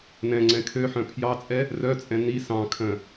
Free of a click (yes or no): no